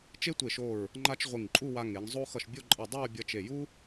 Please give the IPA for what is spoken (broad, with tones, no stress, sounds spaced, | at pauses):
t͡ʃ e˥ tʷ e˧˩ ʃ o˧˩ ɹ | ŋ͡ǃ a˥ t͡ʃ ʁʷ i˧˩ ŋ ǃʼ u˥˧ w a˧ ŋ e˩˧ ŋ zˤ o˥ x ʌ˧˩ ʃ bʲ o˥˧ ǃʼ ʌ˧˩ dˤ u˥˧ ɹ bʲ ʌ˧ t͡ʃ e˧˩ j u˥